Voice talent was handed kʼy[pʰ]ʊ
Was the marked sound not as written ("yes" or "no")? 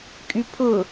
no